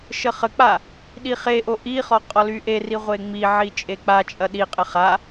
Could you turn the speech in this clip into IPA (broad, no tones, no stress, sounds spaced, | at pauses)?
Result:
ʃ ə χ ə k͡p a | ɗ i χ e ʔ o ʔ i χ ɔ qʼ ɔ l y ʔ e r i ʁʷ e ŋ͡m i ʕ i t͡ʃʼ e k͡p a t͡ʃʼ ɐ ɗ i qʼ ə χ a